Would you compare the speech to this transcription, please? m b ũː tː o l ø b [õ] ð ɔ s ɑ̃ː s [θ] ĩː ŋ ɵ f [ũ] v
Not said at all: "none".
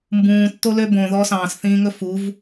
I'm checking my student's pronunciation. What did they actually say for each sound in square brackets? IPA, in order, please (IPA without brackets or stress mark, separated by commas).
õ, θ, u